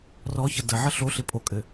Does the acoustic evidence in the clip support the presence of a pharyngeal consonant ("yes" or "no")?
yes